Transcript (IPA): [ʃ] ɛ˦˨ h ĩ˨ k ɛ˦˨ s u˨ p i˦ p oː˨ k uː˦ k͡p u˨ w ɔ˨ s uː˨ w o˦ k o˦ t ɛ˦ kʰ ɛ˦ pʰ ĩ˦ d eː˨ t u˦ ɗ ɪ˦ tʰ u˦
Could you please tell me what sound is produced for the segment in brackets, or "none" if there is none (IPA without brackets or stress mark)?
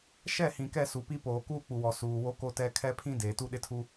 ʃ